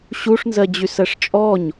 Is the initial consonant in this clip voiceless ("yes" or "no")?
yes